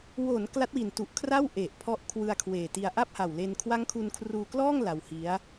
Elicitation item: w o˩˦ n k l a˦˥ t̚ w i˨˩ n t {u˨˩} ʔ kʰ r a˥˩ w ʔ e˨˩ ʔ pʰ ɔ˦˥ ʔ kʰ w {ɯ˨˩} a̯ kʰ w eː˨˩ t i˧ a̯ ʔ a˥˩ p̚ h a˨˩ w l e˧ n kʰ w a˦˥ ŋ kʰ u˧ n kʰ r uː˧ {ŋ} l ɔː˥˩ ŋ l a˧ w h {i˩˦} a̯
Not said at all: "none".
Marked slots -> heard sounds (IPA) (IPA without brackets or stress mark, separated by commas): u˨˩, ɯ˧, k, i˦˥